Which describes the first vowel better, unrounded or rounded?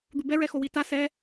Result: rounded